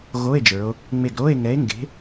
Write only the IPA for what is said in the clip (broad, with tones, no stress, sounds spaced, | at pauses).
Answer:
ɣ o˧˥˧ e̯ d͡ʒ ə˞˩˧ o̯ | ŋ͡m e˧˩ ɡ ɾ o˧˥˧ e̯ ŋ ɛ˨˥ e̯ ŋ ɡ e̤˨˥